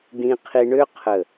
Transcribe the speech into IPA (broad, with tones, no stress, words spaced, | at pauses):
dĩ˧qʰi˧ɳø˦ qʰə˨